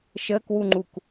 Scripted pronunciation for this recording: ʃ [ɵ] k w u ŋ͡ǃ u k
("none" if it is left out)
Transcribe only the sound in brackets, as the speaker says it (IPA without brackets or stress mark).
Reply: ə